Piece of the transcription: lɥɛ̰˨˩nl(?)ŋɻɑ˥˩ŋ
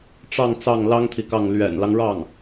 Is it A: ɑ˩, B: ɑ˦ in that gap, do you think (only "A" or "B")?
B